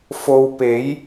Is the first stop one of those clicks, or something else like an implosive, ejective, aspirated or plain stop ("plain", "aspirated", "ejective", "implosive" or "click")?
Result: plain